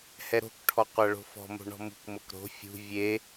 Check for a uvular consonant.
present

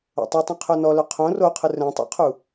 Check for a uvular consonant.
present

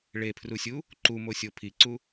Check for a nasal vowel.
absent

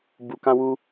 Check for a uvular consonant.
absent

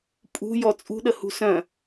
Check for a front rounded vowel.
present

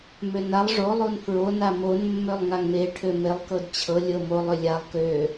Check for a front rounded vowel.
present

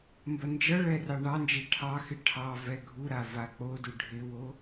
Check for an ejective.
absent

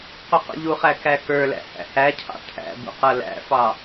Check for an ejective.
absent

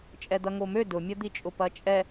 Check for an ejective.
present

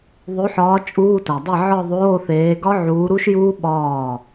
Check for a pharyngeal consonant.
present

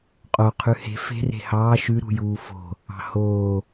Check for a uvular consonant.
present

